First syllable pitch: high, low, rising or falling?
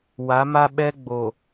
rising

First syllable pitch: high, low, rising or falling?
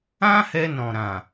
high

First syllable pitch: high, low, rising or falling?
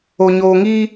low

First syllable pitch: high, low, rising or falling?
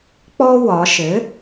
high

